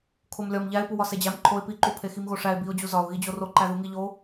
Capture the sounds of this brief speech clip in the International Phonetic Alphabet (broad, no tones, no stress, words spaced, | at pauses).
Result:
kʰomlʲɒm ʎæɪ̯puwɒ sed͡ʑæm ǃʰoɪ̯ piǃu pʰeximɣoʂæɪ̯ biʊ̯d͡ʑu zɒʊ̯ ɣid͡ʑoroǃæ ðuŋiʎo